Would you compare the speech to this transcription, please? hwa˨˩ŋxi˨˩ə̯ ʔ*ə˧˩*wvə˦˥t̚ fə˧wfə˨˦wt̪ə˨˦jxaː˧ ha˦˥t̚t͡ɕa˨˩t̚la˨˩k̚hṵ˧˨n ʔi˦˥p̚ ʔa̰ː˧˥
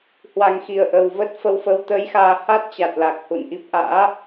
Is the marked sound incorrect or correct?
incorrect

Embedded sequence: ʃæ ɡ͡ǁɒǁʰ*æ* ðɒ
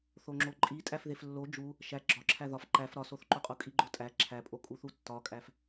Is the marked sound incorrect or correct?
correct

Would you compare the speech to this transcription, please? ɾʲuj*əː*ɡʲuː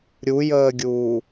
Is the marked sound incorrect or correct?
correct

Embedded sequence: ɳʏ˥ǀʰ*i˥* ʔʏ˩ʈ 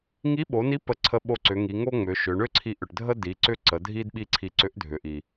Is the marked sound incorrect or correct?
incorrect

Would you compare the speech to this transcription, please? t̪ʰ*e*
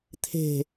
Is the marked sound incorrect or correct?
incorrect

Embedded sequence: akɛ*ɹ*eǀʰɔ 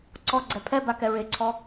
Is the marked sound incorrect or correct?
correct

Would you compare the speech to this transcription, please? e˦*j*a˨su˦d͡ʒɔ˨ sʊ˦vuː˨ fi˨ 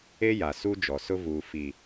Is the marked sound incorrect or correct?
correct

